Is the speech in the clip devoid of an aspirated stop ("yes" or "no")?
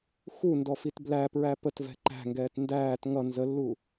yes